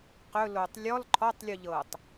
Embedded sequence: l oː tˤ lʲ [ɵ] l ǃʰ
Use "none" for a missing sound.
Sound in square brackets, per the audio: ɔ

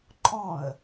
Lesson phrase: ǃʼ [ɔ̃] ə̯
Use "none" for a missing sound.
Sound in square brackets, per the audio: ɔ̃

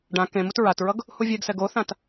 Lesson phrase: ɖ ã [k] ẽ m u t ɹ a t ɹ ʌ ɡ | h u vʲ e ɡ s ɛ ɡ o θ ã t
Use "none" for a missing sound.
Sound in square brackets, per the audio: k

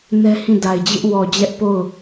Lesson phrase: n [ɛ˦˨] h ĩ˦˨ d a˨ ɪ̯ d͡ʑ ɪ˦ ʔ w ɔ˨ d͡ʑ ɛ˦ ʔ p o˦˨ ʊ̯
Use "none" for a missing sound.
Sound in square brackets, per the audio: ɛ˦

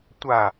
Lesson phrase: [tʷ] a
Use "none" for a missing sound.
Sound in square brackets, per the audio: tʷ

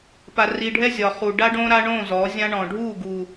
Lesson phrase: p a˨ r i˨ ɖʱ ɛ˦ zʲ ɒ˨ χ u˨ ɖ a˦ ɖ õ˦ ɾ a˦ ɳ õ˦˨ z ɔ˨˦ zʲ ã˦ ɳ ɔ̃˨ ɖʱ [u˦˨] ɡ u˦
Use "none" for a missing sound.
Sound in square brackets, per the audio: u˦˨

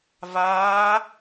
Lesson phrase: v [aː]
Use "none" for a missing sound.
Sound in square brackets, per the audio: aː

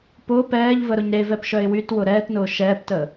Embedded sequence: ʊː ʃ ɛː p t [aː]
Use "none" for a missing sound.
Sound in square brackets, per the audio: əː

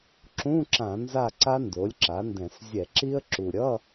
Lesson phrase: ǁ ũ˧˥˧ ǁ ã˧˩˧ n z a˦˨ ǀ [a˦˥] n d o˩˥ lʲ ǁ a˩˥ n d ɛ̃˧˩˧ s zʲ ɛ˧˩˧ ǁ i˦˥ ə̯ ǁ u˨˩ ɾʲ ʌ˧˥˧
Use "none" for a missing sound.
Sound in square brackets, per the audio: a˦˥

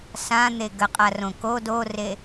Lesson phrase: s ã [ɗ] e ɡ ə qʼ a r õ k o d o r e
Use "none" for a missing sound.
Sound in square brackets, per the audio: n̪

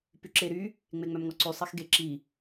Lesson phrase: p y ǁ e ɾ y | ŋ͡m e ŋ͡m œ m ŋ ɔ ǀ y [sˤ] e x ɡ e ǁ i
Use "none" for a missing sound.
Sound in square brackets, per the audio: sˤ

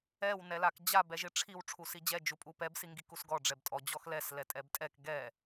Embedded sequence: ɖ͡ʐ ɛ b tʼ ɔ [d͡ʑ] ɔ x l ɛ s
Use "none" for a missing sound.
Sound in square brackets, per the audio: d͡ʑ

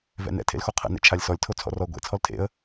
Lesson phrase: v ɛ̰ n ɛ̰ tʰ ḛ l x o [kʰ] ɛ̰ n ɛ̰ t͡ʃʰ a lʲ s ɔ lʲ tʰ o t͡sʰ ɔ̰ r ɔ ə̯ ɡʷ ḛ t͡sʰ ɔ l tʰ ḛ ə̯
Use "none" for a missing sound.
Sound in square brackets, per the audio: qʰ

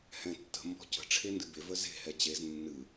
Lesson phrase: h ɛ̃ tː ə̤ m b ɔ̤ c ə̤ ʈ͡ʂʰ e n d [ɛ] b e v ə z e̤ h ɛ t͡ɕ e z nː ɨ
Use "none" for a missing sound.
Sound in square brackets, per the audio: ɨ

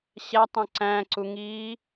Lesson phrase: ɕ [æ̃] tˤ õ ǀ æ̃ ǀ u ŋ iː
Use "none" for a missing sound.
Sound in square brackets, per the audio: æ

